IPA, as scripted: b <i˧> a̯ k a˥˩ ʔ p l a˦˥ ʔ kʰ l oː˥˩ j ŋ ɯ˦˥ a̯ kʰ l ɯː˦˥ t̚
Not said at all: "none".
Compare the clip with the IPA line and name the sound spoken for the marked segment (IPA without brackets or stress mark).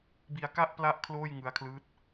i˧